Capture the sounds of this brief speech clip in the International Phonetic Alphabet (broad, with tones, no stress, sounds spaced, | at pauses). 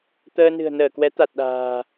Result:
t̪ əː˧ n ɨ̤˨˩ ə̯ n əː˧˩ k w ɛ˨˦ t̪ a˨˩ t̚ ɗ a̤ː˨˩